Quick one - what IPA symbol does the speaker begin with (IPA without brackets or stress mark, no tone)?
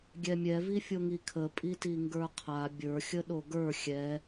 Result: ɡʲ